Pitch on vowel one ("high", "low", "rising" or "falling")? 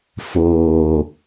low